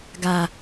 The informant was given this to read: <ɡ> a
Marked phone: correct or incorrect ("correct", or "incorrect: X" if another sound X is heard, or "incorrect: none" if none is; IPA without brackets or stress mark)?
correct